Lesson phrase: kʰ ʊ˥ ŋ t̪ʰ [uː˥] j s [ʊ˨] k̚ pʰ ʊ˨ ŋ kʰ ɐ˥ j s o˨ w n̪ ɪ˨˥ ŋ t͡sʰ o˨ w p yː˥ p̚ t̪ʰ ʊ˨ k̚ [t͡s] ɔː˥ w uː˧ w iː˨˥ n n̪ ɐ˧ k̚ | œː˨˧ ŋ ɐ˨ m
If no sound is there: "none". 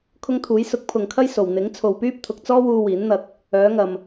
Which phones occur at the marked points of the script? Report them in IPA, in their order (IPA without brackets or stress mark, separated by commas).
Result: uː˨˥, ʊ˨˥, t͡s